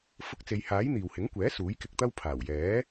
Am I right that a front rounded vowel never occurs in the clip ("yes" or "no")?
yes